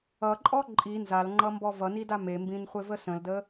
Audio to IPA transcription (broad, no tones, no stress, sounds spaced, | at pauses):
ʌ ǃʼ ɔ ǃʼ i n z a l ŋ͡ǃ ʌ m b ɔ v ʌ n i d a m e m b ĩ n χʷ e v ə s ə̃ l d ə